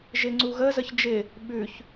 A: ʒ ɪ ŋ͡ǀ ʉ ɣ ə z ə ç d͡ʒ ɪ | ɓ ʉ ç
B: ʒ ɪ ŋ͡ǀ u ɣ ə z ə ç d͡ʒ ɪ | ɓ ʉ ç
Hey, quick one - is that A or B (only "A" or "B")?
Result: B